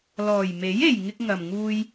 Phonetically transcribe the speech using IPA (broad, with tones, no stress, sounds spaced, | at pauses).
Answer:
l ɔː˨˩ j m e˨˥ j e˨ j ŋ ɪ˧ k̚ ŋ ɐ˨ m ŋ uː˧ j